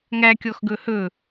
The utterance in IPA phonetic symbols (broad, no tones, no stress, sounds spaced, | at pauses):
ŋ æ kʲ ɔ x ɡ ɵ h ɵ